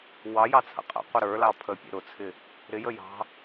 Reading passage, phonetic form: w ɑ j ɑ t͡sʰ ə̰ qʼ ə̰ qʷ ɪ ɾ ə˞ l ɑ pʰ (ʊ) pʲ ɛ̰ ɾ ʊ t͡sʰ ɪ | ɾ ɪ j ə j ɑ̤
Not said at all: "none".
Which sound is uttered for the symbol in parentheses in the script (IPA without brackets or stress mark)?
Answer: ə